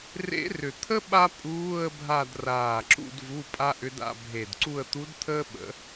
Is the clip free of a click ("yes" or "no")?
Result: no